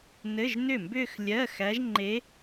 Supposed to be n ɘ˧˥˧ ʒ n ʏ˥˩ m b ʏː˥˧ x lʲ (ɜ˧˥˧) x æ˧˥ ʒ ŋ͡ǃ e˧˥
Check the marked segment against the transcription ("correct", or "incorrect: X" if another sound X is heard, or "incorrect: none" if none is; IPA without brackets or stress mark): correct